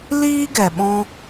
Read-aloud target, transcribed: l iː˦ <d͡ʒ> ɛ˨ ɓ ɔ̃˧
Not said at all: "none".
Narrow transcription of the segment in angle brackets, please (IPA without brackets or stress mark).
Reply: ɡ